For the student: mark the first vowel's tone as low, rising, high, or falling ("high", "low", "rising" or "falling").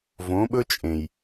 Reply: rising